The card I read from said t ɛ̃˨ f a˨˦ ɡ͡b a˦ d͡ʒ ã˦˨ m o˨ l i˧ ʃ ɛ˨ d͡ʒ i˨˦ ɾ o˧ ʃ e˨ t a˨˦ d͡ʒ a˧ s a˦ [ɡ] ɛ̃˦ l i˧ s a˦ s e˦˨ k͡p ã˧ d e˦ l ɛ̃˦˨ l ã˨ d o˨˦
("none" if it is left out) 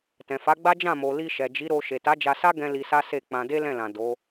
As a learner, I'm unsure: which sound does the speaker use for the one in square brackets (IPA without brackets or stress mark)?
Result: ɡ